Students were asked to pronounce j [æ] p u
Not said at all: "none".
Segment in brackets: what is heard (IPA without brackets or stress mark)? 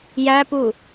æ